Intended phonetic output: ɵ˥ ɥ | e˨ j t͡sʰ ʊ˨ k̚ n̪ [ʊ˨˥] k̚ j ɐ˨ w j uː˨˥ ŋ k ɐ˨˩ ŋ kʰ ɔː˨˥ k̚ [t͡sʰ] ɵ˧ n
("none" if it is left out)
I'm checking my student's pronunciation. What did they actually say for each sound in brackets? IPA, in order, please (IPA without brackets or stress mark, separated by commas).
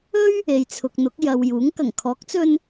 ʊ˨˥, t͡s